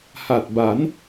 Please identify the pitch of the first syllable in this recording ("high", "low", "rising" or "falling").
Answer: low